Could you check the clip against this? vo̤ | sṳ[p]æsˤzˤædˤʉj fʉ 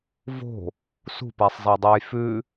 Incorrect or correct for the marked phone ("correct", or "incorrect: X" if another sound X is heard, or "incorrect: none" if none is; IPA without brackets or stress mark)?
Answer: correct